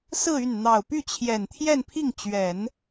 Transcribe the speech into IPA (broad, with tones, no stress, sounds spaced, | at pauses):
s ɹ̩˥˧ y˥˩ n n̪ ɑ˨˩ ʊ̯ p y˥˩ t͡ɕʰ j ɛ˨˩ n t̪ʰ j ɛ˥˧ n pʰ i˥˩ ŋ t͡ɕ ɥ ɛ˨˩˦ n